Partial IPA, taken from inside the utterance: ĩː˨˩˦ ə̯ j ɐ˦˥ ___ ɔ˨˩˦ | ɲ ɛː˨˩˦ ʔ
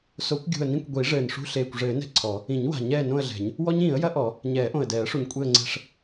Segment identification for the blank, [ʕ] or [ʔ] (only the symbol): ʔ